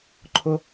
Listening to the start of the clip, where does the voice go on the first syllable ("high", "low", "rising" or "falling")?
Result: high